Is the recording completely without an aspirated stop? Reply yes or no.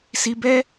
yes